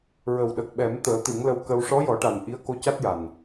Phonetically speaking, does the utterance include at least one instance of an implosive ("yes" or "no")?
yes